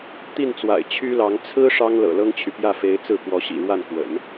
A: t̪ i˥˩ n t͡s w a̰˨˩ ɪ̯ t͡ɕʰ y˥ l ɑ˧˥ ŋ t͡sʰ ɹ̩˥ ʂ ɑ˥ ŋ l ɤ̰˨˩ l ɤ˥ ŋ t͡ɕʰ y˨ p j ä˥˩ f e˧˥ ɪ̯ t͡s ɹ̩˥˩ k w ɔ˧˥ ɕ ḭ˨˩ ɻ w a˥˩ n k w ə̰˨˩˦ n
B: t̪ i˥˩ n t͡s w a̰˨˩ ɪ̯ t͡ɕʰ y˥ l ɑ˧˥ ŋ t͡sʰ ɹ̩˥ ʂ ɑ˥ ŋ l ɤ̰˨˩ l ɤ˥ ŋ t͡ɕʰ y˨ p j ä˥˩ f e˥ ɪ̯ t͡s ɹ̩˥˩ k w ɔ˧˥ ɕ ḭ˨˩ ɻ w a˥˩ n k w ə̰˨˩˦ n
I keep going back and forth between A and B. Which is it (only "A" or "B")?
A